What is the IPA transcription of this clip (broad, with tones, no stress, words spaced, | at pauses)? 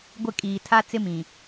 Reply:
ɡʷɪ˦˨ kʼiː˨tʰa˦ t͡sɪ˦mĩ˨